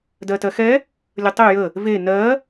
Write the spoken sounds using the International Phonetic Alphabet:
d ɜ t ɜ x ɛ | lʲ ə tˤ e j ə | v e n ɜ

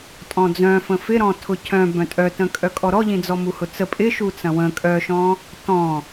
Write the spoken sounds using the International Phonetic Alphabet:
tʼ ɔ̃ d͡z œ̃ f ə̃ f ɪ ɾ ɔ̃ tʰ ʊ cʰ œ̃ b œ̃ tʼ œ t ə̃ kʼ œ kʼ ɔ ɾ ɔ ʎ ĩ d͡z ɔ m u h ʊ t͡s ə pʼ ɪ ʃ u t͡s ɐ̃ w ə̃ kʼ œ ʃ ɔ̃ | t ɔ̃

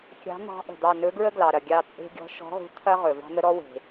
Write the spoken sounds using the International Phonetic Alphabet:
kʲ ɑ̤˧˥ n̪ ɑ̤˧˥ ʔ ə̤˩ d̪ ɑ˦˨ n ɵ˧˥ ɡ ɹ ə˥ ɡ l ɑ˩ ɾ ɐ˩ ɡʲ ɑ˦˨ t͡sʼ e̤˥ ɡʲ ɔ̤˧˥ ʃ ɔ̤˧˥ ʁ ṳ˧˥ t̪ʰ ɐ˥ ʁ ɵ˩ v ɑ̤˥ n̪ ə˥ ɾ ɔ˥ w e̤˩

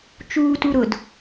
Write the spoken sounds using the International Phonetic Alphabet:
t͡ʃ uː t u ɾ ʊ d

